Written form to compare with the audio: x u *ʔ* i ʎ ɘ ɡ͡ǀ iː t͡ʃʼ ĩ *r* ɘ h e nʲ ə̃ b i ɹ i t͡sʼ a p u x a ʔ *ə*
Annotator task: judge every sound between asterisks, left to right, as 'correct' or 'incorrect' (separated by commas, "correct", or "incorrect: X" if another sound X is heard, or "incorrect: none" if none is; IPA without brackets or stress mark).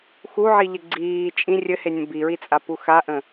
incorrect: ʕ, incorrect: rʲ, incorrect: ə̃